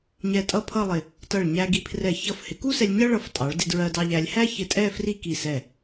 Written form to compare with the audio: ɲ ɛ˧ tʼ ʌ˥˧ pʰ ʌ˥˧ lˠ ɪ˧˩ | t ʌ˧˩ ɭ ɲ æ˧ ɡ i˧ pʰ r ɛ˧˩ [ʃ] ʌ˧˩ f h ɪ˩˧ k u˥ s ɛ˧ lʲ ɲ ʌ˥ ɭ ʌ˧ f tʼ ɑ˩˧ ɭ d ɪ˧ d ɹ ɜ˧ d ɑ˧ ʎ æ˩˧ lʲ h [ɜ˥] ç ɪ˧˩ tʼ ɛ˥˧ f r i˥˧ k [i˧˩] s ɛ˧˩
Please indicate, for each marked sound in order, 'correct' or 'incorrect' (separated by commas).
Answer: incorrect, incorrect, correct